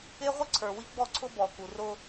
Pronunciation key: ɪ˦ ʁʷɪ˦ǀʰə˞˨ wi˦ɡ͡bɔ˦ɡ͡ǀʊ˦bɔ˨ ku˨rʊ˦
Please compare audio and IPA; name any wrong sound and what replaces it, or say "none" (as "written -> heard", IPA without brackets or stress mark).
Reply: ɡ͡ǀ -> ǀʰ